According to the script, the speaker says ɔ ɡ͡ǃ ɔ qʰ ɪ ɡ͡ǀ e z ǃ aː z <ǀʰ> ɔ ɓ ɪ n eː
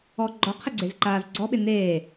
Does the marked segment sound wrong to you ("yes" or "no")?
yes